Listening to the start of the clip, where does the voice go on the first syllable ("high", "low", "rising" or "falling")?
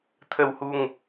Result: low